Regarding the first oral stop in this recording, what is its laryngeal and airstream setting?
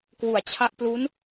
plain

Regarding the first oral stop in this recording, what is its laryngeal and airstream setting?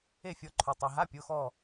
click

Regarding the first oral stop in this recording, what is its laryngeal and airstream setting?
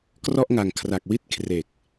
plain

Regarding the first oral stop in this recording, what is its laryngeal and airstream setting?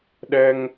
implosive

